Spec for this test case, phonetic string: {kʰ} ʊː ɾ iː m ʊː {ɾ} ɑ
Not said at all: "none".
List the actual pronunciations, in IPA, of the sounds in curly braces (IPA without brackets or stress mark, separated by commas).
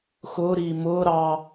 x, ɾ